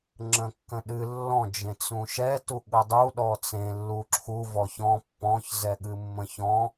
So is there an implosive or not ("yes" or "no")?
yes